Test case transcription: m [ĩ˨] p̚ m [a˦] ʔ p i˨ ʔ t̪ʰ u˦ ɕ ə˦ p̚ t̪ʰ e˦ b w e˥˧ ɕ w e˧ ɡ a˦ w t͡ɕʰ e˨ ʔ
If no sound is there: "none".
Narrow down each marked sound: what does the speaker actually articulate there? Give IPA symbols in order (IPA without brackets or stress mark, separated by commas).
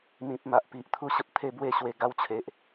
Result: ĩ˨, a˨